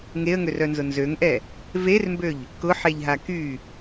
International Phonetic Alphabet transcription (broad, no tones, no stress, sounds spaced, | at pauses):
ŋ e ə̯ ŋ ø r œ n z ʊ n z ø ŋ ʔ ɛ | v e r m b ø ʎ | k ʊ ħ e ʎ ɦ a k y